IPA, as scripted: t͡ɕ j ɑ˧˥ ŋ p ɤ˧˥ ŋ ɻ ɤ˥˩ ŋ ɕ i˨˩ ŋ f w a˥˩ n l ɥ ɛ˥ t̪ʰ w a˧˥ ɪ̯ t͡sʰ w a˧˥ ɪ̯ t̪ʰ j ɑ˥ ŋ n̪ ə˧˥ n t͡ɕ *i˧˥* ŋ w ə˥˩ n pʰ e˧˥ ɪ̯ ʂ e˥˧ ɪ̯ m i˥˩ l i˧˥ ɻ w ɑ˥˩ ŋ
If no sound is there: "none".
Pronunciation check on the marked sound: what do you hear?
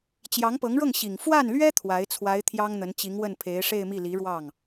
i˧˥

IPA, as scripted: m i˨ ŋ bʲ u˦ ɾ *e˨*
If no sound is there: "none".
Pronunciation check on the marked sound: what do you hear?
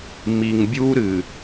ɨ˨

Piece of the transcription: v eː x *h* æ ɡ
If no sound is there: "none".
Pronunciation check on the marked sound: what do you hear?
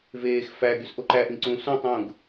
f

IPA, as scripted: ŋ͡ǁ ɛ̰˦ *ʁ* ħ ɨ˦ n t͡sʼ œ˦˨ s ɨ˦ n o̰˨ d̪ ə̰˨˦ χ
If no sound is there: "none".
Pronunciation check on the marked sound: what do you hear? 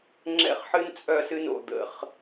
χ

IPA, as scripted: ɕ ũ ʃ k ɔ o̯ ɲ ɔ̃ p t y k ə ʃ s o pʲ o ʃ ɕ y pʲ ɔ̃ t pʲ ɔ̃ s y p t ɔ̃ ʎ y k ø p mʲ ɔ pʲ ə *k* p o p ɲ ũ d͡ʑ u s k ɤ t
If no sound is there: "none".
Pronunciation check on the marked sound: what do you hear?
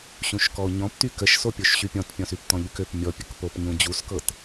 k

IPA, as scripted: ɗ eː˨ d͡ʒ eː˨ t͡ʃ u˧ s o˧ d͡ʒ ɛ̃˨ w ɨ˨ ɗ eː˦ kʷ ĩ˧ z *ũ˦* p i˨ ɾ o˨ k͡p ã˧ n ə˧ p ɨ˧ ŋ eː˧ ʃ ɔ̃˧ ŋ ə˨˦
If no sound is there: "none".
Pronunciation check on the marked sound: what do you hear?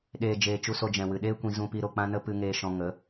ũ˨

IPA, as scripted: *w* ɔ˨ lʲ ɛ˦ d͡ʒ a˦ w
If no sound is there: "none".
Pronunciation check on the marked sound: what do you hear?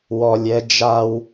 w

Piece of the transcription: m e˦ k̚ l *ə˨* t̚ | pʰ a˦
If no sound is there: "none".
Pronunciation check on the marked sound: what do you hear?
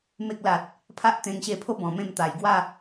a˨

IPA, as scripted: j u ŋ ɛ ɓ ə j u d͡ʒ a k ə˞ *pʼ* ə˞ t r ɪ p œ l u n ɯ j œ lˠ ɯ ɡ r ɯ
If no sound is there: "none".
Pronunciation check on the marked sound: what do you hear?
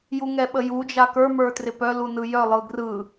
m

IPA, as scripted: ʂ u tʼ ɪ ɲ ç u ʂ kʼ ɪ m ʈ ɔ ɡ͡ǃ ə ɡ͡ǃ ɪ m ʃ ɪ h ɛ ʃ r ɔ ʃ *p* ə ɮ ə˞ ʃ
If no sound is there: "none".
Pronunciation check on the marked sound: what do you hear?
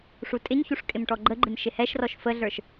f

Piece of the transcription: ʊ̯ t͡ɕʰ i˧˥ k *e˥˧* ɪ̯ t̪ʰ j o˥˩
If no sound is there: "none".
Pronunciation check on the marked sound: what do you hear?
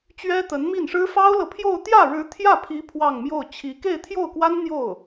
e˥˧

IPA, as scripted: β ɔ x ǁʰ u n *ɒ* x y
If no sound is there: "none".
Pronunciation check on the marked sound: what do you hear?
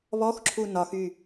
ɒ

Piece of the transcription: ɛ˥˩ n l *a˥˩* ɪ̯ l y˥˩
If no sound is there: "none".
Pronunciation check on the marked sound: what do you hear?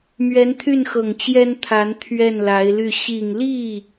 a˧˥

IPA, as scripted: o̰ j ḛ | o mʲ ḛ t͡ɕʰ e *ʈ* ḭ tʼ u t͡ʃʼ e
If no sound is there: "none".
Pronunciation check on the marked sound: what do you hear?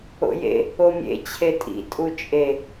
tʼ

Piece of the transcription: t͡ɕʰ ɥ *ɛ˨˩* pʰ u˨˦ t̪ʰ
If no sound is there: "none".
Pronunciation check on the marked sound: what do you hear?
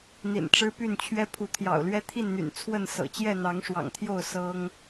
ɛ˦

